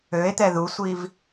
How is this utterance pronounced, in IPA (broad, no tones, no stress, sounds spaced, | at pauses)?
ø e̯ t̪ ɛ ð u sʷ i v